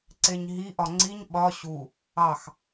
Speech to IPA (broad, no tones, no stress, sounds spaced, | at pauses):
ǀ e ɲ ɦ i ʔ ɒ ŋ͡ǀ i ɲ ɓ ɒ ɕ u | ɑ x